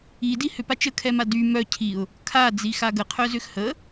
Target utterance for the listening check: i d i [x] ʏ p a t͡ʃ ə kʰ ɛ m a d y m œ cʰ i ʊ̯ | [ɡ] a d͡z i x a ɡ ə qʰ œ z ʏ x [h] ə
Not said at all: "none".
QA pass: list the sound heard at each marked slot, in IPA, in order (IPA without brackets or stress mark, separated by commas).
h, kʰ, h